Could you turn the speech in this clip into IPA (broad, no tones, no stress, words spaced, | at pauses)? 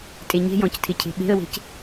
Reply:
tʼeɲe̤jɔ̃c tʰɪcʰe̤ɓe̤ə̯we̤c